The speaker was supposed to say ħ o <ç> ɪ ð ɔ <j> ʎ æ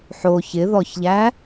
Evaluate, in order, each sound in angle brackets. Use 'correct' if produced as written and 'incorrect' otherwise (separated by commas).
correct, incorrect